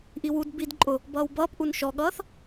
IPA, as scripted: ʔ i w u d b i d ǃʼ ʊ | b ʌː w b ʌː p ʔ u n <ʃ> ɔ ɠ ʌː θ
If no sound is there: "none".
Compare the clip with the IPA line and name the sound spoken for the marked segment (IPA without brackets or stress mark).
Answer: ʃ